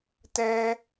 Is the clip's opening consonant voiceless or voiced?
voiceless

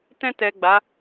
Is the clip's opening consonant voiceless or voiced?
voiceless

